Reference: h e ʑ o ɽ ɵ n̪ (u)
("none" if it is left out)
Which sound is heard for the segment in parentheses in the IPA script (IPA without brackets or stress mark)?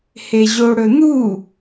u